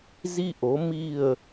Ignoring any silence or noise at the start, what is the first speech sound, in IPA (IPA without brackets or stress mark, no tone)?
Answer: z